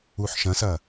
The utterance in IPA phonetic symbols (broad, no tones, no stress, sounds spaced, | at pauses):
u ħ ʃ ɐ̃ s ɐ